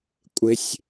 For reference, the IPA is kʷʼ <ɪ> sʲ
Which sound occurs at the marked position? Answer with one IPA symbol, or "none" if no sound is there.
ɪ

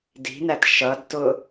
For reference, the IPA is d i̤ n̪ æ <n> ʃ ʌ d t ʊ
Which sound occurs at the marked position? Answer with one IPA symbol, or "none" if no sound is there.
t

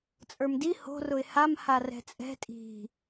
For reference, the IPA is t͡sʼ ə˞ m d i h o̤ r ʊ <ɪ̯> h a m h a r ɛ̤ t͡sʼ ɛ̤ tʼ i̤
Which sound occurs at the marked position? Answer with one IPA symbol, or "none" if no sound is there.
ɪ̯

